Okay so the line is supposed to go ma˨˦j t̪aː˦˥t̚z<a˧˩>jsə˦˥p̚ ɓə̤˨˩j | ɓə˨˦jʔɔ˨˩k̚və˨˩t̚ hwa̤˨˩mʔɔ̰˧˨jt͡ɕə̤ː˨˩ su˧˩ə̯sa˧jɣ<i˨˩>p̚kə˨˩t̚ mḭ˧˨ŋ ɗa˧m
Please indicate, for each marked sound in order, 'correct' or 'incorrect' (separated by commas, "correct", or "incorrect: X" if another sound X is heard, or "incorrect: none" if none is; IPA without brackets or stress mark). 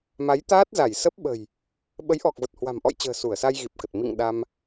correct, correct